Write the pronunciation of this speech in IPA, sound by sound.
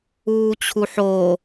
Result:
uː t͡ɕʰ u ħ o

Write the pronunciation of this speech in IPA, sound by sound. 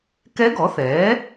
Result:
k ɛ˧˥ ɡ ɔ˩˥ θ ɛː˩˥

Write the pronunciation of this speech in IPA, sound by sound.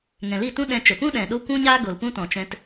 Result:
ŋ ɛ̃˨ l i˦˨ t ũ˦ ɗ ɛ̃˧ t͡ʃ ə˨ p ũ˦ ɗ ɛ̃˨ ɗ o˦ kʷ ũ˦ ɲ aː˦ ɡ o˨ l p ũ˦ t ɔ̃˨ t͡ʃ ɛ̃˧ t

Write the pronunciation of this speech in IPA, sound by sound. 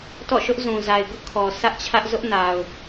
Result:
t ɔ̰˦˨ ʃ ʊ˦ ʔ z ũ˨ z a˨ ɪ̯ ɡ ʊ˦ ʔ kʰ ɔ˨ sʰ ä˦ ʔ t͡ɕʰ ä˦ ʔ z ʊ˦ ʔ n a˨ ʊ̯

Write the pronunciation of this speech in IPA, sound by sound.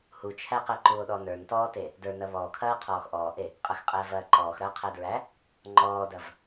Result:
h u t͡ʃʰ æ q æ ǃ u o̯ ɗ ɔ n ə˞ n t ɔː t e | d ə˞ n ɐ β ɔː kʰ ɐː qʰ ɔː x ʔ ɔː ʔ e | qʼ ɐ x qʼ æ v ɐː ǃ ɔː x ɾ ɐː qʰ æ d ɹ æ | ŋ͡ǃ ɔː d ɐ v

